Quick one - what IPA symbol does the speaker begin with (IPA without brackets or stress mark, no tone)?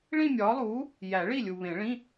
ɭ